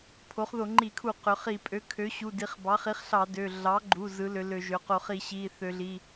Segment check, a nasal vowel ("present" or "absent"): absent